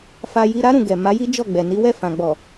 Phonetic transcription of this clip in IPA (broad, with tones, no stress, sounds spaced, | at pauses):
f a˧ j i˧ ɾ a˦ ɾ ũ˧ ɡ ɛ˨ m a˨˦ j i˦ d͡ʒ ɔ˦˨ ɡ͡b ɛ˨ n i˨˦ w ɛ˦˨ f ã˨ ɡ͡b ɔ˨